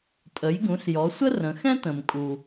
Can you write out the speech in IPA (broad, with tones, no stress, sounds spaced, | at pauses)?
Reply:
tʼ ə˩˧ j ɡ ũ˩˧ ɬ j ɔ˩˧ sʷ ə˥ r ə̃˩˧ x ɛ̃˥ t ə̃˩ m kʼ u˩